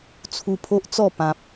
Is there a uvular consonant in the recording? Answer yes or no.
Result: no